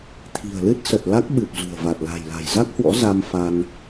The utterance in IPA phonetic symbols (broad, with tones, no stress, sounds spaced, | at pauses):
t̪ʰ i̤˨˩ ə̯ l ɨ˦˥ t̚ s ə˨˩ t̚ l a˦˥ k̚ ɓ ɨ˨˩ p̚ z ṳ˨˩ ə̯ v a˨˩ t̚ l a̤˨˩ j l a̤˨˩ j z a˦˥ k̚ h w ɔ̰˧˥ z a˧ m f a˧ n